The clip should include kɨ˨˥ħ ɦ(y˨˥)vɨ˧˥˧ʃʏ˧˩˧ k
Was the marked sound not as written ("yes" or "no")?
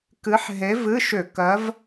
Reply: yes